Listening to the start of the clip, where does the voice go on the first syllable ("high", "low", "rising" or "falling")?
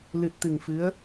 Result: low